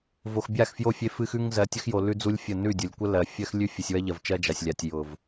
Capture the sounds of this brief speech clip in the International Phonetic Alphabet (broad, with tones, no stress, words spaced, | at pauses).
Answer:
vo˨xbʲa˦˨xfjo˦˨ fʲe˦fɨ˦xʉ˦ŋ zɜ˨˦tʲə˦xjo˨ lʉ˦d͡zu˦lʲfʲə˦˨ nʉ˦˨dʲʊ˨lʲ kʷə˦lɜ˨fʲɜ˦x lʲʉ˦ fʲɨ˨sʲwɜ˦ ʎɜ˨vt͡ʃɜ˦ d͡ʒa˨sʲ lʲa˨tʲjʊ˨v